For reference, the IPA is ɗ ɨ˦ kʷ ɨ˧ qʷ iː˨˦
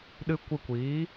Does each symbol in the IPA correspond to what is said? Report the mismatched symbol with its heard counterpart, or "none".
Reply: qʷ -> kʷ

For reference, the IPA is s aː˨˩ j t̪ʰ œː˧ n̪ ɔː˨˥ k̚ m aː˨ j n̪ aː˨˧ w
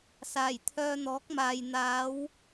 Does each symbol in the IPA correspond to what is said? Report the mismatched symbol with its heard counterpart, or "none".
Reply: none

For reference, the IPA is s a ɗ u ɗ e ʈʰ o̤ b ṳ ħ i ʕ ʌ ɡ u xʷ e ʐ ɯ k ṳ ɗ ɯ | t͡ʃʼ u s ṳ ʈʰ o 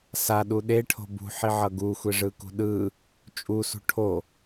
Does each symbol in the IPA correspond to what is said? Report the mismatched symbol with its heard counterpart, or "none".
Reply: none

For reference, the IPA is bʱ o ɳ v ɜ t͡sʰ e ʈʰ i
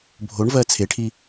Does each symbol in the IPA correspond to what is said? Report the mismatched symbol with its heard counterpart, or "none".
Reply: none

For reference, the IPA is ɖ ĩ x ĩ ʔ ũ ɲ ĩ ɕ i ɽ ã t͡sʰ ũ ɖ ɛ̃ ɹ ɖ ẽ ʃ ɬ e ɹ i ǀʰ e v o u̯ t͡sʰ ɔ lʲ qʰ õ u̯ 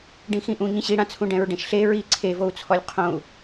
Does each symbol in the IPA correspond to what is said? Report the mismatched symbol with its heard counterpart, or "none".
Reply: none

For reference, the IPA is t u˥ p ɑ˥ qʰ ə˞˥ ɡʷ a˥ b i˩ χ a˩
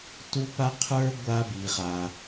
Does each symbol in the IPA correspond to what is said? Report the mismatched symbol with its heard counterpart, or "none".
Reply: ɑ˥ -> a˥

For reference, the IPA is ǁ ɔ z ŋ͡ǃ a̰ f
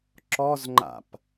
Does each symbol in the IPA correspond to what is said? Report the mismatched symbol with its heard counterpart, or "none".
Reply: f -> p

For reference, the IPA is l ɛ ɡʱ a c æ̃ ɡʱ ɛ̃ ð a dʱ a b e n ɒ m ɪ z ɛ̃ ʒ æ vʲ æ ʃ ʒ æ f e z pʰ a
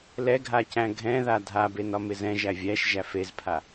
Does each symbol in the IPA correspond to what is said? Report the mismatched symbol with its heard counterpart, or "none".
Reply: none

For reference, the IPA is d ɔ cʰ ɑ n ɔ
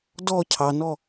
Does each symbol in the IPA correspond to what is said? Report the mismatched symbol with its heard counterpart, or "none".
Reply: none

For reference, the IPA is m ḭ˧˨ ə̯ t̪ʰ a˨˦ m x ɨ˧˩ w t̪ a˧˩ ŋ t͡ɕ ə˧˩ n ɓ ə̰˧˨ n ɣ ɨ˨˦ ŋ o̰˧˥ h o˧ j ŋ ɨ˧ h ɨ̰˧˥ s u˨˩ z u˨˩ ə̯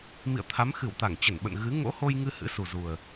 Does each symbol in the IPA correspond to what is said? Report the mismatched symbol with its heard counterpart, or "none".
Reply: none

